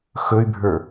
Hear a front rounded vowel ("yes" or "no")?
yes